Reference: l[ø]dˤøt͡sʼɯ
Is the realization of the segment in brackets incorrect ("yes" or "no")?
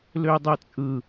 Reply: no